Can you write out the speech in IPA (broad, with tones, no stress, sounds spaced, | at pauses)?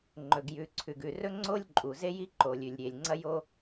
ŋ͡ǃ ɵ˩ ɡ j ʉ˩ ǀʰ ʉ˩ ɡ ʉ˩ r ɵ˥ ŋ͡ǀ o˥ lʲ ǃʼ u˩ z e˥ j i˥ ǃ o˩ lʲ ʉ˩ lʲ ɾʲ e˩ lʲ ŋ͡ǀ ɐ˥ j o˥